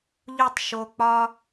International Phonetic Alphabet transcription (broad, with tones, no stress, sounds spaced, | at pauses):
ʎ u˦˨ tˤ ʃ o˧ k͡p ɒ˦